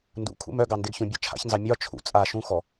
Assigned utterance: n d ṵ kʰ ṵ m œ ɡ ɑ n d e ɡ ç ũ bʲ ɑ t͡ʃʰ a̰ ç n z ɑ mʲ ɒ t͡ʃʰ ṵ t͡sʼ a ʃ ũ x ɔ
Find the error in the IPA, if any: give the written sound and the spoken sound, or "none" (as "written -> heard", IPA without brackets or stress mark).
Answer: none